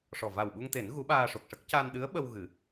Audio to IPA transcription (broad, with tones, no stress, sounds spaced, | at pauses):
ʂ ɔ˨˩ v a˨˩ w ɓ u˧ ŋ t̪ e˨˩˦ n ɣ u˧˥ ɓ aː˧ ʂ o˨˩ k̚ ʂ ə˦˥ k̚ c a˧ n ɗ ɨ˧˥ ə̯ ɓ ə˧ w ɣ ɨ˨˩˦